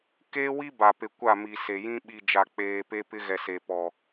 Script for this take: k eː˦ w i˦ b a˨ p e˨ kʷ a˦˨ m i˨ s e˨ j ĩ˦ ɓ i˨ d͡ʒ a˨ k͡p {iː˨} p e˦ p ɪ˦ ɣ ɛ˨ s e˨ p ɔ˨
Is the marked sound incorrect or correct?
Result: incorrect